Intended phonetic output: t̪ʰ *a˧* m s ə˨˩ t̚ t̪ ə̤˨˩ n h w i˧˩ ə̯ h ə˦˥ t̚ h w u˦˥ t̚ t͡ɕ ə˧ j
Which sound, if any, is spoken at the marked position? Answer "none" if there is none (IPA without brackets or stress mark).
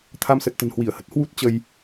a˧